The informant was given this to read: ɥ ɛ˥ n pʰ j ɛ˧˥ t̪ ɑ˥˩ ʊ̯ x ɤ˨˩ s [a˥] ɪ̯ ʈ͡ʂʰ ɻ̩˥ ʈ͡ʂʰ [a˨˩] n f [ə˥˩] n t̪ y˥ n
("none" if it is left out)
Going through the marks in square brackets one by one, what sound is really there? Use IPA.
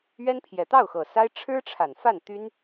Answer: a˥, a˨˩, a˥˩

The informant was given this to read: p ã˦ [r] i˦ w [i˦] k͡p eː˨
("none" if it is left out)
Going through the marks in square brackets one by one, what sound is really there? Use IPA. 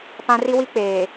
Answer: r, i˦

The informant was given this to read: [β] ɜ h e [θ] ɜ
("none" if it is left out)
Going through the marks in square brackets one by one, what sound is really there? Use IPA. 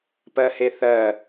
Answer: p, θ

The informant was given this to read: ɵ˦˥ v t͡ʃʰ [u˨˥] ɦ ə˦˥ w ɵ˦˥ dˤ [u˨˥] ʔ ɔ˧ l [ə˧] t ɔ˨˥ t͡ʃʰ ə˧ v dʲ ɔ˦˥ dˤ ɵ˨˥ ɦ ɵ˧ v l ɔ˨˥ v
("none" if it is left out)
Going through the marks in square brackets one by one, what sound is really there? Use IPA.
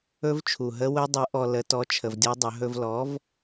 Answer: u˨˩, u˨˥, ə˨˥

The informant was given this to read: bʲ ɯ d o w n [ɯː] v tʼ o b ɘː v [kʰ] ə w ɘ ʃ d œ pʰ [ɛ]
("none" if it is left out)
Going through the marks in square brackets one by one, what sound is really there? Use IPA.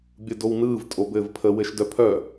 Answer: ɯː, pʰ, œ

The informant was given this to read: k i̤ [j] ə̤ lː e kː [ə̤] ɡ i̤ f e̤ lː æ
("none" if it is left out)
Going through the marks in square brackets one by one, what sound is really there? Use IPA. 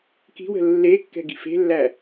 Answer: w, ɛ̤

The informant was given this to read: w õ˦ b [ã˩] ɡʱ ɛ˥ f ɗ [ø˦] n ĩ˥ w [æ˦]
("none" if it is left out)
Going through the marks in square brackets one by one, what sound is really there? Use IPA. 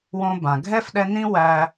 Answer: ã˩, ɛ˦, æ˦

